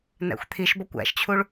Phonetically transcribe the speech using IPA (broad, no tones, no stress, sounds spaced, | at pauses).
n æ̰ xʷ t̪ʰ i ʃ b ɒ kʷ æ̰ ʃ t͡ɕʰ u ɭ